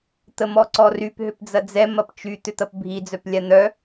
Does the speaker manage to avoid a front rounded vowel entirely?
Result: no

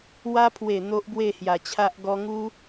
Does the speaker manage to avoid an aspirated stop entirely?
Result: no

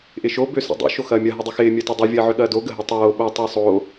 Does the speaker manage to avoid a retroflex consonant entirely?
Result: yes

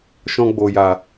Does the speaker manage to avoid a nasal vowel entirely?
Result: no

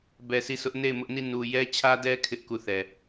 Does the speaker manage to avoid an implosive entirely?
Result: yes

